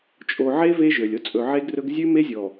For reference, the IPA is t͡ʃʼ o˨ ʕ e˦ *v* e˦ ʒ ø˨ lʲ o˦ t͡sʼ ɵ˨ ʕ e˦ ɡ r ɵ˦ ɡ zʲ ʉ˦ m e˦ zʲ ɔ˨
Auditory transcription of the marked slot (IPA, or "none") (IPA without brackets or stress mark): v